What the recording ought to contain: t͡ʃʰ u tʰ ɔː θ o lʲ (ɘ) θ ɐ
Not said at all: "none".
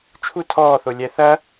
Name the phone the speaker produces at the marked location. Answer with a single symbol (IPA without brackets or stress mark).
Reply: ɛ